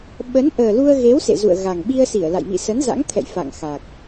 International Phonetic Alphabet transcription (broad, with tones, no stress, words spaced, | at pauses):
ɓə˨˦nʔəː˨˩lu˧ə̯ɣe˨˦w sḛ˧˨zṵ˧˨ə̯ɣa˨˩ŋ ɓi˧ə̯ si˧˩ə̯la̰˧˨j mḭ˧˨sə˨˦nza̰˧˥ŋt̪ʰɛ̰˧˨j fa̰˧˨ŋxa˨˩k̚